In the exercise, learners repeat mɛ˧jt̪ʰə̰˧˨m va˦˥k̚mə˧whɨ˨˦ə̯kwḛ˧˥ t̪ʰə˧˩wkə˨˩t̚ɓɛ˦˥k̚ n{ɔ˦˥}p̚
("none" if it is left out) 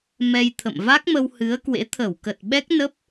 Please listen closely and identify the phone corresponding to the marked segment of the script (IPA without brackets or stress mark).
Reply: ə˦˥